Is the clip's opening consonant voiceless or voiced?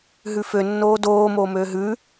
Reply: voiced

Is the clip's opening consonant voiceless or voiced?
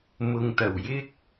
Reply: voiced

